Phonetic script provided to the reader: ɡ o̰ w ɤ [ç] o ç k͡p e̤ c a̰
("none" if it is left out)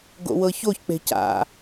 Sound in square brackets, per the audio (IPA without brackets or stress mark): ç